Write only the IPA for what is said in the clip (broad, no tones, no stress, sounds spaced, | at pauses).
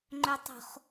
ŋ͡ǃ œ tˤ o̤ χ